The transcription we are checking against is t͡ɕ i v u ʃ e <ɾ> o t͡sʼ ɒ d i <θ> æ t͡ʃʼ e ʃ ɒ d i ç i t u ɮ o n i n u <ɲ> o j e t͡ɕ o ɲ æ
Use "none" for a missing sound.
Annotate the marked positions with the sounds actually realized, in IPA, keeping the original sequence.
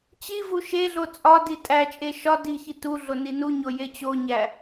ɮ, tʼ, ɲ

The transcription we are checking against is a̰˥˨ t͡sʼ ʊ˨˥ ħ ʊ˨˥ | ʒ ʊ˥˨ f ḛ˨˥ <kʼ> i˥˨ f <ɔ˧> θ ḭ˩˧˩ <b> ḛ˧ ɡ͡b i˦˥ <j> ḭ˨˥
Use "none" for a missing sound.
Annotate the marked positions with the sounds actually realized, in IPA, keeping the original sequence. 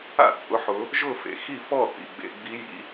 x, ɔ˥˨, ɡ͡b, j

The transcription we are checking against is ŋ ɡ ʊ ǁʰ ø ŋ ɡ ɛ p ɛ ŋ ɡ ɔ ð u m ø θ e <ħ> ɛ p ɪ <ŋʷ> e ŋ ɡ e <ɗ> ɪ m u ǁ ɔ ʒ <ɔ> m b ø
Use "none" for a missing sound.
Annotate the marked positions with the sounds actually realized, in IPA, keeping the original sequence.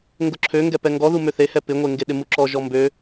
h, ŋʷ, ɗ, ɔ

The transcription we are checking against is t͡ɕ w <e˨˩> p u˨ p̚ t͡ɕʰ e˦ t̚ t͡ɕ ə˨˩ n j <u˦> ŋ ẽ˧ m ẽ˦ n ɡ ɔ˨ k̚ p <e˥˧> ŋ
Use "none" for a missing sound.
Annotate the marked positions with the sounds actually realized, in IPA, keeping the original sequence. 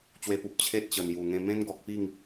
e˧, u˨˩, i˥˧

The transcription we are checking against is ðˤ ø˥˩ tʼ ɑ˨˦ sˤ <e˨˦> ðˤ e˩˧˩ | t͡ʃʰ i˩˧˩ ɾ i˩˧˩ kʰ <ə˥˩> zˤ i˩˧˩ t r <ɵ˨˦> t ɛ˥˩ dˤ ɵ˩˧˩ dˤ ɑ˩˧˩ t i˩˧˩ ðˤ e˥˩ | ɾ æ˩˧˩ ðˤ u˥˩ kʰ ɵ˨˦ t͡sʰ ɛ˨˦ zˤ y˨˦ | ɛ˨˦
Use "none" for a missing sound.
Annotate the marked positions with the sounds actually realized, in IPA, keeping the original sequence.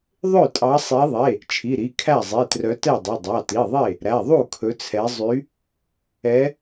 e˨˦, æ˥˩, œ˨˦

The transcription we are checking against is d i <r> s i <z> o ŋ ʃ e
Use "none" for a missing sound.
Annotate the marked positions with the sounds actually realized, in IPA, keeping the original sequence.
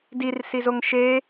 r, z

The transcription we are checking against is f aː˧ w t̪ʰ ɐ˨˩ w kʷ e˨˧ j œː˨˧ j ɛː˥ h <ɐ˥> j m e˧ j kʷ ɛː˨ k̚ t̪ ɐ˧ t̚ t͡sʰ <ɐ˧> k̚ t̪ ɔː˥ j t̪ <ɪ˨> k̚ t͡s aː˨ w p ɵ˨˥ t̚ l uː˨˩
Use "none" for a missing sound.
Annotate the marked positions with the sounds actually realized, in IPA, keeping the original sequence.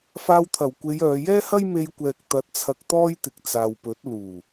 ɐ˥, ɐ˧, ɪ˨

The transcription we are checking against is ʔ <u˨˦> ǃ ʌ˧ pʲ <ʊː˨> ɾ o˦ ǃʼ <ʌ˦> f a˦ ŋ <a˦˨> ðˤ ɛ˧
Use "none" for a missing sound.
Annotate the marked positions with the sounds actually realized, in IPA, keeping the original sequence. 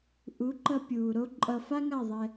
u˨˦, uː˨, ʌ˧, a˦˨

